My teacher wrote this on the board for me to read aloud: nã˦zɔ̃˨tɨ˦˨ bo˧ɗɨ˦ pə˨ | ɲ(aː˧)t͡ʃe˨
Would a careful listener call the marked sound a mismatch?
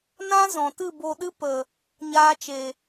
no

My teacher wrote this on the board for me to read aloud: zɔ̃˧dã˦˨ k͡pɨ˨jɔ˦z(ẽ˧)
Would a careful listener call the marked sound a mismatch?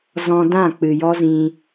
yes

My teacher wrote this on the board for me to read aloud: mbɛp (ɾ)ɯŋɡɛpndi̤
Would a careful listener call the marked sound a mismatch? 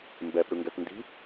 no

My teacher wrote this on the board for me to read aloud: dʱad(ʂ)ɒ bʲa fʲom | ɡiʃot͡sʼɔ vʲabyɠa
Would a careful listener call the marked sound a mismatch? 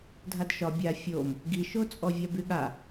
yes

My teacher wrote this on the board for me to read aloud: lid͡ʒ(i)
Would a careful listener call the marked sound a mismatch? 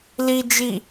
no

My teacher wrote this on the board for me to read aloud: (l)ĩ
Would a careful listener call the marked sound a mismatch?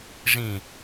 yes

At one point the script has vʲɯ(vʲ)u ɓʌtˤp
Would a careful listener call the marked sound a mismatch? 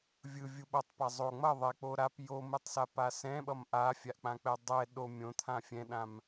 no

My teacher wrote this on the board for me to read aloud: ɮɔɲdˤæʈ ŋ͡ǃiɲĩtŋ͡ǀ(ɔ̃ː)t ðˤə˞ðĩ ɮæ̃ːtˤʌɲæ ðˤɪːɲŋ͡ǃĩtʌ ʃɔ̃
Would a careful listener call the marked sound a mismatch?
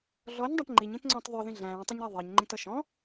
no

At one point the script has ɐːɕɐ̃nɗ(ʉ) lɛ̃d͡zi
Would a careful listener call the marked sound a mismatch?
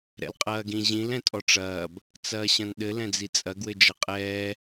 yes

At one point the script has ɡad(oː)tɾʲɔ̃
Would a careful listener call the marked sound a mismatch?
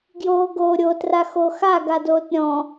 no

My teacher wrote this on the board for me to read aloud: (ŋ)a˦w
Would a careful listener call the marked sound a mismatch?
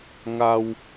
no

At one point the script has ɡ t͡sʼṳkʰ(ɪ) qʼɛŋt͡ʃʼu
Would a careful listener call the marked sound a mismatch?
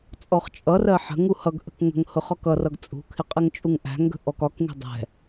no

